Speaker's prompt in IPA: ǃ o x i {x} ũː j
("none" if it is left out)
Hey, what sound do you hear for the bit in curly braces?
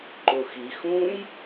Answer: x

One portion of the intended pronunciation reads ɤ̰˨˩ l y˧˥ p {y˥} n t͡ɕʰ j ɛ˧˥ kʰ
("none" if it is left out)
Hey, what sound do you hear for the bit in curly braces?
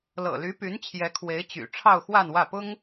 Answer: y˧˥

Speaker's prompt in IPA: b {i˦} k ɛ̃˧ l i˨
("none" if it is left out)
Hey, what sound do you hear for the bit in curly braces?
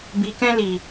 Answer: i˨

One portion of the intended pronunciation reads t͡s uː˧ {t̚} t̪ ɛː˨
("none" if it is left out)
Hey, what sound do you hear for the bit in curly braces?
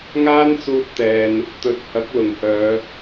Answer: t̚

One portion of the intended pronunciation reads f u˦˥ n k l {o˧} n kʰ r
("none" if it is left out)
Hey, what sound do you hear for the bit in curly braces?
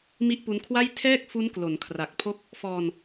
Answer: o˩˦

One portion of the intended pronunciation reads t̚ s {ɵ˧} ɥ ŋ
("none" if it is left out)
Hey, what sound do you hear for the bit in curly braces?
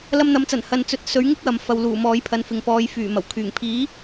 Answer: ɵ˨˥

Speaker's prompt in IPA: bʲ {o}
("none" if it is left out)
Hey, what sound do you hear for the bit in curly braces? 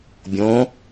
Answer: õ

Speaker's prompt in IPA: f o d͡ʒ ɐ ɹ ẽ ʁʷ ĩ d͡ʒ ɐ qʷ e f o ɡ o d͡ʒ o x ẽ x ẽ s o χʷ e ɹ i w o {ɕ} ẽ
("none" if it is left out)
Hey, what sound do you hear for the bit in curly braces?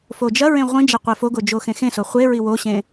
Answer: ɕ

